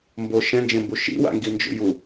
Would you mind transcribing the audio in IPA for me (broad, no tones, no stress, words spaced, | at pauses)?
mbo ʃɛ̃nd͡ʒẽmbu ʃḭwa̰ŋɡind͡ʒṵ ju